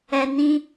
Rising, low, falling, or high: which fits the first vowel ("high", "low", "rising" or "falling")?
low